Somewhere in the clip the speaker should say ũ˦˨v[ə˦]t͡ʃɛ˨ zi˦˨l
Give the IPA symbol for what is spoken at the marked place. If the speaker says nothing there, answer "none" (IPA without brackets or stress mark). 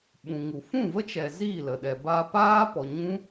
ə˦